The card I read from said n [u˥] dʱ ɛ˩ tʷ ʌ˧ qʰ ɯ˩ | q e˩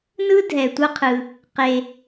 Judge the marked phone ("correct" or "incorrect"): incorrect